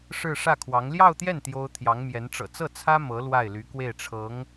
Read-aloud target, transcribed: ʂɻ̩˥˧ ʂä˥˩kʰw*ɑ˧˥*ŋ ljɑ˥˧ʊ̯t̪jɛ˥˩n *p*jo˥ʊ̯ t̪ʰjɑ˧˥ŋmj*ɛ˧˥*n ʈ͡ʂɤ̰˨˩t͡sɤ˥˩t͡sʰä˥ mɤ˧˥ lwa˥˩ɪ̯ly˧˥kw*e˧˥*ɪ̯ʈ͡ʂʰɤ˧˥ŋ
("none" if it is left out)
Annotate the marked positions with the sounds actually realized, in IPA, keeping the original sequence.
ɑ˧˥, t̪, ɛ˧˥, e˥˩

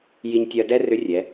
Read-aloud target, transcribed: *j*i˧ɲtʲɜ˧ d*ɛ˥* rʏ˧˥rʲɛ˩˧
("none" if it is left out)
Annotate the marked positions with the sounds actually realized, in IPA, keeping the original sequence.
j, ɛ˥

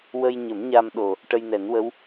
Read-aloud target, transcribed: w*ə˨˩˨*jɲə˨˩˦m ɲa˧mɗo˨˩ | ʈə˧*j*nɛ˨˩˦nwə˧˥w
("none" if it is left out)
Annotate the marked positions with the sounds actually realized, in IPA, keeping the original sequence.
ə˧, j

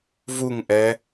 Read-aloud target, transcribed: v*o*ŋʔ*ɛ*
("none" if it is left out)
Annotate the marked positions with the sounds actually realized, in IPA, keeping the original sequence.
u, ɛ

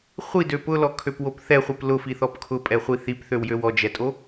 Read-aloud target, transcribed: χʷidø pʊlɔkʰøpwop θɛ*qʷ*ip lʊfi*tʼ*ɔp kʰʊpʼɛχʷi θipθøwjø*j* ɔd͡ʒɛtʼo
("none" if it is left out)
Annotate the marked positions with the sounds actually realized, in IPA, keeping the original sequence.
χʷ, θ, w

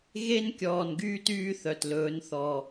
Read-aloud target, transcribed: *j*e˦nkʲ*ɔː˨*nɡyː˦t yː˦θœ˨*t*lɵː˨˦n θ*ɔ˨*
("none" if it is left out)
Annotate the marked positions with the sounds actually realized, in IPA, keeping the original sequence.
ɣ, ɔː˨, t, ɔ˨

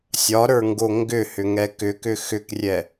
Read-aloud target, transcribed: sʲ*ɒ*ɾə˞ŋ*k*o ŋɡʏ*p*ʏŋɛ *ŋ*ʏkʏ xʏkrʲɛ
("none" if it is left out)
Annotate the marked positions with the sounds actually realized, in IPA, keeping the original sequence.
ɒ, ɡ, h, k

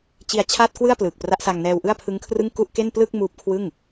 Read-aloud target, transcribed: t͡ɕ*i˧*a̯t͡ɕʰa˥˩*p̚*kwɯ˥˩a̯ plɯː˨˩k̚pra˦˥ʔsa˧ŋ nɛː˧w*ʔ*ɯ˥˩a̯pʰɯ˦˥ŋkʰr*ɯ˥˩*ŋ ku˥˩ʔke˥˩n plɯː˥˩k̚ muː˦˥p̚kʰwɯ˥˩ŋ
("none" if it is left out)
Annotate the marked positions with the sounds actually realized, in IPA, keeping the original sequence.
i˧, t̚, ʔ, ɯ˥˩

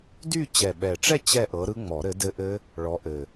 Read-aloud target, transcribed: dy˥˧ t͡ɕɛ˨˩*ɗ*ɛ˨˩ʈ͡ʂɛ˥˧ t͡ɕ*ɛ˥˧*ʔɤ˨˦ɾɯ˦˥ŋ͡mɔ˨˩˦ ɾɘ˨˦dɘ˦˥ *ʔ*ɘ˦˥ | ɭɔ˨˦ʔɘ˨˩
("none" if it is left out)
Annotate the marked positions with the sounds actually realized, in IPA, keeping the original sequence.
ɓ, ɛ˥˧, ʔ

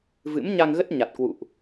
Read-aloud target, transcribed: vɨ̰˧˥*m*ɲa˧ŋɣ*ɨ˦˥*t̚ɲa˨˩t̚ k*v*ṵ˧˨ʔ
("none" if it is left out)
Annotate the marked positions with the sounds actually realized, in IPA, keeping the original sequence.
m, ə˦˥, w

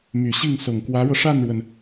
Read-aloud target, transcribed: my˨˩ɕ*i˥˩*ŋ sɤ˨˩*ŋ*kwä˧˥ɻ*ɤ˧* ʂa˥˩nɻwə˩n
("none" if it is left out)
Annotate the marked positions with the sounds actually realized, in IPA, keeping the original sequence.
i˥˩, ŋ, ɤ˧

